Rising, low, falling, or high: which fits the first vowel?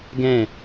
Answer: falling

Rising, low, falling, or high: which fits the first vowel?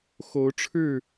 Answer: rising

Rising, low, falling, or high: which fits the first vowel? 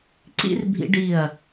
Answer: falling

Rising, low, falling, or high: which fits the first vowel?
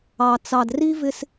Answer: low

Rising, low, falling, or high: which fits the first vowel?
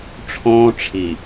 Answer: high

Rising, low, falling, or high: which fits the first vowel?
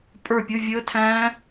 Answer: falling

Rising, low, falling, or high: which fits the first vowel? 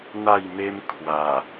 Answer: falling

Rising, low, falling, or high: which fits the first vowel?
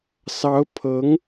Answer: rising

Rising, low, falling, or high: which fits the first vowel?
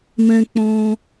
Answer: low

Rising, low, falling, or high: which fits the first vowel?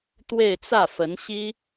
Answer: falling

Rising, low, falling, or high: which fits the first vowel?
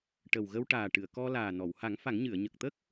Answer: low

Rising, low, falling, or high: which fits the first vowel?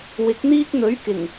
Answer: rising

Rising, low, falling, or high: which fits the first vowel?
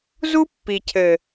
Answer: high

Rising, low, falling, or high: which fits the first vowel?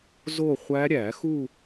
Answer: falling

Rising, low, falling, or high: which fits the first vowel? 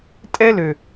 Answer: high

